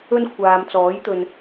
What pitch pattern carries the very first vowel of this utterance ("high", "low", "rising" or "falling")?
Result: high